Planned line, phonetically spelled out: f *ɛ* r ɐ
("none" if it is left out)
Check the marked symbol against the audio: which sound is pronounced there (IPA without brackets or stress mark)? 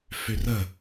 ø